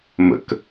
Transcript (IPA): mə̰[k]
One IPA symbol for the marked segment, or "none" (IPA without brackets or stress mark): k